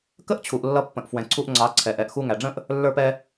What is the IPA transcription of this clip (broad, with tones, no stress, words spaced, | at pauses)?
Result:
kə˦ʔt͡ɕʰu˨ʔ lːʌ˧pːə̃˨ʔfwɛ̃˨ ǀʰu˧ʔŋ͡ǀɑ˨˦ ǀʰɛ˨ʔɛ˨ʔ xu˧ŋæ˨ɖ͡ʐə̃˦ʔ | lːə˞˧pɛ˧